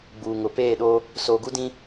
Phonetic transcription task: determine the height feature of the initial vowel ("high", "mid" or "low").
high